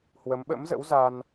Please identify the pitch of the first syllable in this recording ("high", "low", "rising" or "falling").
rising